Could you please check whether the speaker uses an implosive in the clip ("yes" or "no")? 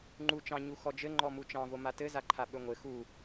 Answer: yes